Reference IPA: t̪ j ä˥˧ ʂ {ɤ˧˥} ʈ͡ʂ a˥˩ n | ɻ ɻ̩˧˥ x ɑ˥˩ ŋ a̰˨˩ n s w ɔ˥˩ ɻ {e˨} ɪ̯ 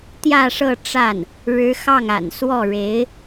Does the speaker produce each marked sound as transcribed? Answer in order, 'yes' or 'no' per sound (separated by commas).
no, no